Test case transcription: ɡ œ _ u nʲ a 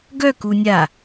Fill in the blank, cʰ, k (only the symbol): k